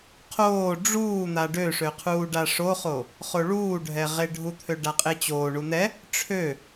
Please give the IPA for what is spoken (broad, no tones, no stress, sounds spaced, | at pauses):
qʰ oː ɖ͡ʐ uː n̪ a ɖ ø ʂ ø qʰ uː ɖ a ʂ o χ o | χ o ɭ uː ɖʱ ɛ ʁ e ɖʱ u t̪ʰ ø ɖ a qʼ e t͡ɕ oː ɳ u n̪ ɛ | ʈ͡ʂʰ ø